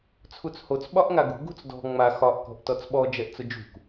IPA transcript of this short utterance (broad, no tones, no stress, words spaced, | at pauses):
t͡sʰut͡shot͡s ɓɒʔŋaɡṳ ɡṳt͡sdɔ̤ ŋ͡ma xɒʔ kɔ̤ʔtɔt͡sɓɔ d͡ʒɛʔt͡sʊd͡ʒṳk